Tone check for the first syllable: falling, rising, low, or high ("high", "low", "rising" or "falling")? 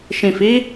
low